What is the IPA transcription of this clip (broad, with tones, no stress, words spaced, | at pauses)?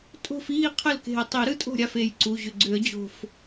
tʼo̤˥˧fiː˥˧qʰə˥˩lke̤˧˩ə̯ tˤi˨˩˦ɾɯ˥˧tʼo̤˥˩ɾʲa˥˩f e˩˧˩jǀu˩˧˩ʑʏ˧˩ ɡ͡ǀʏ˨˩˦ə̯d͡ʑo̤˧˩f